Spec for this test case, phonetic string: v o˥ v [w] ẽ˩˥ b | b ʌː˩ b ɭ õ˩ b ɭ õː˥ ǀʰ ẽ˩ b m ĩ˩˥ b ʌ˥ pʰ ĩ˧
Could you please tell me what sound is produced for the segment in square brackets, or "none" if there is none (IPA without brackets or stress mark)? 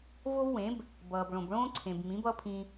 w